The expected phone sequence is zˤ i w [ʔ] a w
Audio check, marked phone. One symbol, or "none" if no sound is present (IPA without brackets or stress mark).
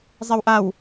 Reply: ʔ